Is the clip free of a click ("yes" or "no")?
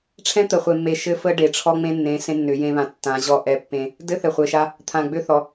yes